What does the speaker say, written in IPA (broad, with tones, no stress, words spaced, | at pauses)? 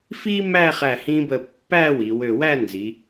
fi˥mæ˥˧ χæ˧˩hĩ˧bə˧˩ pːæ˥˧wi˩˧ wø˧˩wæ˥˧ nzi˩˧